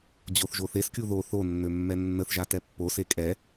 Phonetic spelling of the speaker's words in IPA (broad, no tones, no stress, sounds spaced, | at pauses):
d͡ʑ o θ ʒ o θ e s kʲ u ð o θ o nː ø mː ɛ nː ə θ ʒ a t ɛ pː o s e kʼ ɛ